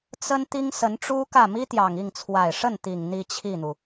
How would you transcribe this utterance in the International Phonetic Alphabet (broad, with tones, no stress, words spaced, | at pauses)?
t͡sə˥n t̪i˥ŋsə˧˥n ʈ͡ʂu˥ kä˥˩ mi˥t̪jɑ˨˩ŋi˥˩ŋ t͡sʰwa˨˩ɪ̯ʂə˥˩nt̪i˨˩ŋ n̪i˥˧t͡ɕʰi˥˩n̪u˩